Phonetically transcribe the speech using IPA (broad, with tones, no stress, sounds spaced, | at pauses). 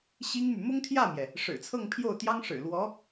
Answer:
ɕ i˥ ŋ m y˨ m ʊ˥ ŋ t̪ʰ j ä˥˩ m j ɛ˩ | ʂ ɻ̩˨˩ t͡sʰ ɤ˥˧ ŋ pʰ j o˥˩ ʊ̯ t̪ j ɑ˥ ŋ ʂ ɻ̩˨˩ l w ɔ˧˥